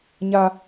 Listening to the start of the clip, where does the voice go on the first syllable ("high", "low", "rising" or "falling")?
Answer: high